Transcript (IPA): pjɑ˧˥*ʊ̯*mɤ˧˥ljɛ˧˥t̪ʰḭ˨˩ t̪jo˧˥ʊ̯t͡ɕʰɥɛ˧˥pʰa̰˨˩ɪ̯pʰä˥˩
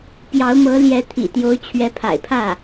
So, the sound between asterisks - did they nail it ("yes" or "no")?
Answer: yes